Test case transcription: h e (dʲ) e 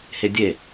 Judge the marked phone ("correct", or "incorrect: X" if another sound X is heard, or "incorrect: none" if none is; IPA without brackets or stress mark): correct